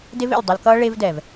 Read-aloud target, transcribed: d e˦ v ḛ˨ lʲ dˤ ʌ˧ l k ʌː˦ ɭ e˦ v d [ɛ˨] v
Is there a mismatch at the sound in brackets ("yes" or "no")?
no